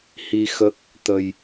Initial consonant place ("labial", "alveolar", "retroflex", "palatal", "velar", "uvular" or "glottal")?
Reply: glottal